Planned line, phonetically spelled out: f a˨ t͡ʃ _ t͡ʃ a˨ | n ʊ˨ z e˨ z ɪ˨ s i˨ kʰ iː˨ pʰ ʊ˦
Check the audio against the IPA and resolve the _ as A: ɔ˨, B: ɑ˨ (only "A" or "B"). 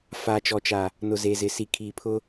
A